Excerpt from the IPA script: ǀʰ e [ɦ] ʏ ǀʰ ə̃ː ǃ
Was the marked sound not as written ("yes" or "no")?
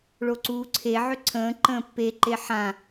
yes